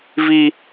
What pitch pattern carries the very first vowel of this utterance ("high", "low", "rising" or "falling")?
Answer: high